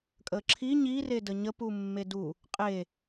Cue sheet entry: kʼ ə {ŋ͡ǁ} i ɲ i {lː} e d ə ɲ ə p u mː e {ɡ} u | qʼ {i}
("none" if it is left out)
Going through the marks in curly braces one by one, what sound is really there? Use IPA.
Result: ǁʰ, r, d, e

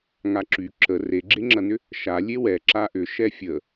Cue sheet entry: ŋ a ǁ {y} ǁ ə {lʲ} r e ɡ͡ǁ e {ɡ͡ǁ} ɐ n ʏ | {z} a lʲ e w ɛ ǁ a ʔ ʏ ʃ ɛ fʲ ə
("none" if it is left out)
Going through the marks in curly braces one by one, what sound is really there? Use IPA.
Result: y, none, ŋ͡ǁ, ʃ

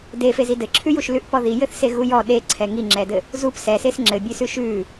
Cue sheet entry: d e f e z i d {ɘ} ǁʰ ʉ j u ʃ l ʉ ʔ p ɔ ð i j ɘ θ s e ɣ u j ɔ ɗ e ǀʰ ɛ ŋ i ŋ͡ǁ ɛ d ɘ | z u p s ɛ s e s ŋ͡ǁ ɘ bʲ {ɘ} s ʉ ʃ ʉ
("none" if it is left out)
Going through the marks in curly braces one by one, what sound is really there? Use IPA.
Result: ɘ, ʉ

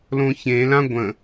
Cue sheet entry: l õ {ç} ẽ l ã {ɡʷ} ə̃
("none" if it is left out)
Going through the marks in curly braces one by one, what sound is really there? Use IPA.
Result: ç, ɡʷ

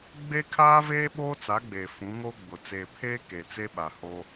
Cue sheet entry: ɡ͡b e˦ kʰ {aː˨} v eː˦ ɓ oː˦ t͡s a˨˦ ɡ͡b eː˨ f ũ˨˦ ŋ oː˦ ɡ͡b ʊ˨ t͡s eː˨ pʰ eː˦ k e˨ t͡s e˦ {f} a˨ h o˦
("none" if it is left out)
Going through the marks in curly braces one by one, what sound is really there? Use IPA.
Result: aː˦, ɓ

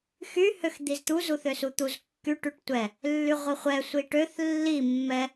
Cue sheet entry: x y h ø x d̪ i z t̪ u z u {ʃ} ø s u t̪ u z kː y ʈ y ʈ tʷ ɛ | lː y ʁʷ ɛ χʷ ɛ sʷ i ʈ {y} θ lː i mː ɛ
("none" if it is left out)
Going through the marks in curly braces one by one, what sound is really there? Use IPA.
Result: θ, ø

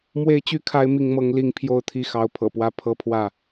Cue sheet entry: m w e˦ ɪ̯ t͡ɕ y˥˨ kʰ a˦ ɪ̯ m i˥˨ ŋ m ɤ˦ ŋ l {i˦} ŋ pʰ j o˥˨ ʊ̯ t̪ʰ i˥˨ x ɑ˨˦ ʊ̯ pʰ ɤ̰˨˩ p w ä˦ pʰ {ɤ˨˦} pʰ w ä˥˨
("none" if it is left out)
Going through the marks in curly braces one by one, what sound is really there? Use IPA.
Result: i˦, ɤ˦

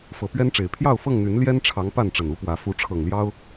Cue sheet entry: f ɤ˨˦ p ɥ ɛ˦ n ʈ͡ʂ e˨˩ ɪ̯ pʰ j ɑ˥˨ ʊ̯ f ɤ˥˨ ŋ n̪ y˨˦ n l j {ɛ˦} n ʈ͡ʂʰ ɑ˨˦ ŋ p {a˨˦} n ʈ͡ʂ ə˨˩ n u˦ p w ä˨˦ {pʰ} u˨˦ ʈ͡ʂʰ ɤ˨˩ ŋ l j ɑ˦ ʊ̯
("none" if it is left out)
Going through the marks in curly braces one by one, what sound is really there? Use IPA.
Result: ɛ˦, a˥˨, f

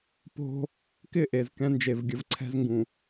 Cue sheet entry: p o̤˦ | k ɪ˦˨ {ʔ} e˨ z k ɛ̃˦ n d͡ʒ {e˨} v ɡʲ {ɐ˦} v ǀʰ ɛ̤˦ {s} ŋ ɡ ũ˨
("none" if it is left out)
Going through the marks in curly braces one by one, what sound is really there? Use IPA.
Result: ʔ, e˨, ə˦, z

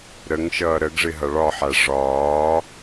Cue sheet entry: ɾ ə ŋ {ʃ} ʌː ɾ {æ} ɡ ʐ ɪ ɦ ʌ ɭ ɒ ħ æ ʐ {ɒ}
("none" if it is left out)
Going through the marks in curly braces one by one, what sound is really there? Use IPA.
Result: ʃ, ə, ɒː

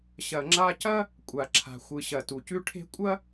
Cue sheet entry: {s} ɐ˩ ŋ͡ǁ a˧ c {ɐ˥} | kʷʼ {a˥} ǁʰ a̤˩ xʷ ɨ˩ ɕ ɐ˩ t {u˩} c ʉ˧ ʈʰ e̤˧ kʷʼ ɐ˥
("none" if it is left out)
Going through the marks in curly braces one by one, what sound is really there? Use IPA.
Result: ɕ, ɐ˥, a˩, u˩

